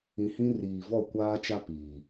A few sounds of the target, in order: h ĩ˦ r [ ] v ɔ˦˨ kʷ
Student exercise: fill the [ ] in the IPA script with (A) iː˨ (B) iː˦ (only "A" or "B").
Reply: A